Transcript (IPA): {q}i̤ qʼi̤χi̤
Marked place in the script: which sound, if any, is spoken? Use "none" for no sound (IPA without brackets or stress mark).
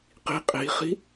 q